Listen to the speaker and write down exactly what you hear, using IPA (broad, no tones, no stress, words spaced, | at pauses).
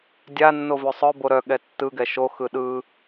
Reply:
dʲanːo vøsˤœbo ɾœɠɛ tːɯɡɛ ʃoxɯ ɗɯ